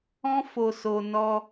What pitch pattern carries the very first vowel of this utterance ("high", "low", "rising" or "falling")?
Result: high